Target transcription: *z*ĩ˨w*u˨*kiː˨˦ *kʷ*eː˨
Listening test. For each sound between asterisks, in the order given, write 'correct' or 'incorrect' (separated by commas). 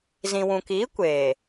correct, incorrect, correct